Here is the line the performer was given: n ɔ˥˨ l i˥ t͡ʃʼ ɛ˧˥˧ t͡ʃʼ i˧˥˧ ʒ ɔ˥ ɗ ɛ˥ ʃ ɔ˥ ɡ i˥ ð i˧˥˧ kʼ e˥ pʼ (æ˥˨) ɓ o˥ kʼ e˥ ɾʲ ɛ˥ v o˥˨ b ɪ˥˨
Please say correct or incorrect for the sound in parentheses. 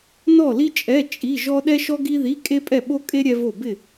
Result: incorrect: ɛ˥˨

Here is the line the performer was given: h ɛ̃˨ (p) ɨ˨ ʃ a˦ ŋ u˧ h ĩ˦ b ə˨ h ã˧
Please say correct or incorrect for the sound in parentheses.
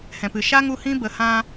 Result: correct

